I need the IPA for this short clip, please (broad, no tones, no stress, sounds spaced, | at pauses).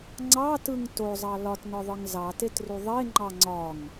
ŋ͡ǀ ɑ t ɯ ŋ t o zˤ ɑ l ɒ t n ɒ ðˤ ɯ ŋ z ɑ t e t r u ðˤ e ŋ͡ǃ ɑ ŋ͡ǀ ɒ ŋ